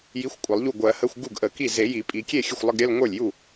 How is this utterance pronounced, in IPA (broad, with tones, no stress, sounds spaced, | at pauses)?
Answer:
j i˧˥˧ xʷ kʷʼ ə˨˩˦ lˠ ʎ u˥˩ ɡʷ ɜ˨˩˦ h ə˧˥˧ xʷ ɡ u˥˩ ɡ ʔ ə˨˩˦ k i˥˩ z e˨˩˦ j i˨˩˦ pʼ i˨˩˦ kʲ e˥˩ xʲ ə˥˩ xʷ lˠ ə˧˥˧ ɡ ɾʲ ɜ˧˥˧ l ŋʷ ə˞˥˩ lʲ j u˥˩